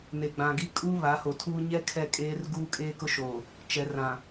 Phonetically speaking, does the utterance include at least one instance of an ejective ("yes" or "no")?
yes